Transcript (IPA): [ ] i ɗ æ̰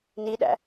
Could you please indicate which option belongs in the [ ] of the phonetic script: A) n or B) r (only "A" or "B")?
A